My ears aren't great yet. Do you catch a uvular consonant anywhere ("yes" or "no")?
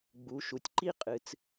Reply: yes